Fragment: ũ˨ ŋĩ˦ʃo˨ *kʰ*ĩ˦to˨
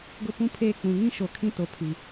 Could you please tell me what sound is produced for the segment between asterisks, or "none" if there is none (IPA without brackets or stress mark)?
kʰ